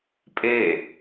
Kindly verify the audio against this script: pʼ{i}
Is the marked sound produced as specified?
no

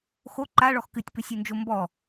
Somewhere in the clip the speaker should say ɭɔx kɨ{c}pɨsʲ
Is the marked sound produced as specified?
no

